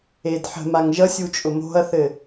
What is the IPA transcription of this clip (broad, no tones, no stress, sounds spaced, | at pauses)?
e d ħ ə̤ m a ŋ ʒ ʌ sʲ u t͡ʃʼ ʊ m o̤ ɐ̯ θ ɘ